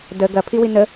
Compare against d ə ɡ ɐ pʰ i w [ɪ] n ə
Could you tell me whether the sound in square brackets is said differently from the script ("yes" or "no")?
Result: yes